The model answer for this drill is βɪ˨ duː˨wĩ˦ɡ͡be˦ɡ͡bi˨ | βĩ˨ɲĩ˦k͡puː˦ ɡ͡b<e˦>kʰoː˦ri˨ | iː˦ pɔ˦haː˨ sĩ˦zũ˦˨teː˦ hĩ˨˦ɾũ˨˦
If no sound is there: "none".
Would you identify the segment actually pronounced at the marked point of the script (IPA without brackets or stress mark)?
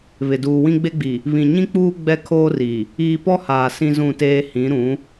ɛ˦